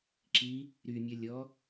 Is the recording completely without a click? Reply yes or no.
no